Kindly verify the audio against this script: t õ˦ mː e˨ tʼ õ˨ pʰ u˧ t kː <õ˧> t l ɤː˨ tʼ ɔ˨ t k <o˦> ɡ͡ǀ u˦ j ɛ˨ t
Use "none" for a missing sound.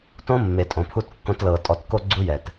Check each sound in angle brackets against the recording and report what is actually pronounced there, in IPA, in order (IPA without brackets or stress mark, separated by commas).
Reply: õ˧, o˦